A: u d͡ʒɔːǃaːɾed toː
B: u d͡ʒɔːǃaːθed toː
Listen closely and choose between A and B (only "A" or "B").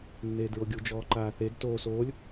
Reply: B